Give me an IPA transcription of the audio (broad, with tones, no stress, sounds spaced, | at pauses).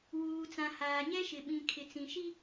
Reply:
w uː˨ t͡s ã˨ h aː˨ ɲ ɛ˦ ʃ ɪ˨ ɓ ĩ˨ kʰ ɪ˨ t͡s ĩ˨ ʃ i˦